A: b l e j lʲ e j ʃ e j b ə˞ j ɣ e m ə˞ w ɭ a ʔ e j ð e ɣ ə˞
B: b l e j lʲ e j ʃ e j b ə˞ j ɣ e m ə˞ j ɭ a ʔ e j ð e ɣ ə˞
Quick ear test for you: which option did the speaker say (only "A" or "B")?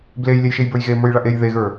B